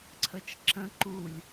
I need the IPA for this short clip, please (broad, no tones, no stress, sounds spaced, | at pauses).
ǀʰ ə t͡ʃ ǁ ə̃ ǃ u lʲ